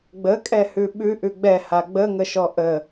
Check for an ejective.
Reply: present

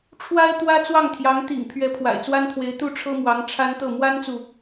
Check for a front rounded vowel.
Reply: absent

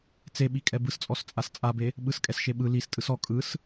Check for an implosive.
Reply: present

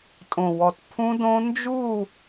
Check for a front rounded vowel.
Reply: absent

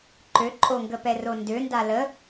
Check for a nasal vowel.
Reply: absent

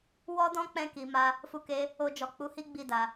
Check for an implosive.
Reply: absent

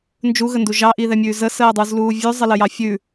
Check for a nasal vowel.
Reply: absent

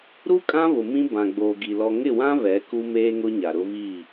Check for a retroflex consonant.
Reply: absent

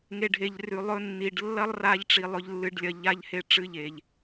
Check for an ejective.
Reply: absent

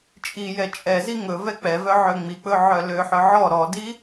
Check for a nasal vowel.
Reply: absent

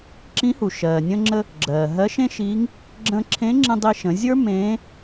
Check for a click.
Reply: present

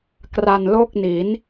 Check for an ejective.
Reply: absent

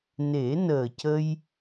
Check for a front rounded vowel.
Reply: absent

